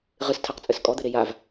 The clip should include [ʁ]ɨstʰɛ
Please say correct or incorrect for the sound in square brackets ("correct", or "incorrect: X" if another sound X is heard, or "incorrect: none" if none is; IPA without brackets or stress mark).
correct